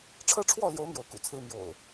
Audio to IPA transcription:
ʈ͡ʂʰɤ˦ʈ͡ʂʰwɔ˥˨ljo˨˦ʊ̯ mjo˨˦ʊ̯kṵ˨˩t͡sʰɹ̩˦ mjo̰˨˩ʊ̯

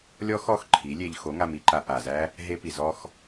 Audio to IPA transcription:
lʲɔ˦xɔ˦˨x ǃʰi˨˦ lʲe˧ʎ xo˨˦ŋa˧mi˧ǃa˧ ʔa˨zæ˦ | ɦe˦pi˨zɔ˦x

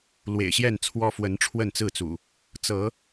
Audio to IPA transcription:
lwḛ˨˩ɪ̯ɕjɛ˥˨nt͡sʰwɔ˦ fwə˨˦n ʈ͡ʂʰwə˥˨nt͡sɹ̩˥˨t͡sṵ˨˩ | t͡sɤ˨˦

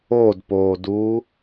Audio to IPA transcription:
odpoːduː

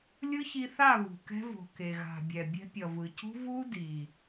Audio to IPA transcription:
lʲɯ˦çi˧θa˦˨ βṳ˨kɛ̤˧vo̤˨ ke˨ɣa̤˨bʲɛ˨ bʲɛ̤˧pʲʌ˨vɯ˨cṳ˦ vu˦ di˨

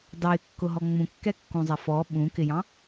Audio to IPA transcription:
dɑɪ̯kːʊɦɔ ŋ͡mũkːɛkːũzˤɛ fɔ ɓũkɪjɑ̃

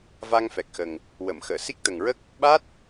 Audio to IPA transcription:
va˧ŋfɛ˨˩k̚xə˨˩ŋ | wə˨˩˨mxəː˨˩˨ si˦˥k̚t̪ə˨˩ŋɹə˦˥k̚ | ɓa˦˥t̚

